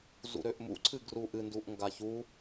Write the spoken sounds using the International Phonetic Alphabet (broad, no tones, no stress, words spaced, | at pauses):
zṵɾøʔmṵǀʰɨ ɡruʔɨnduʔ ŋɡaçu